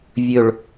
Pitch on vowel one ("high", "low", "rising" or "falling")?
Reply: falling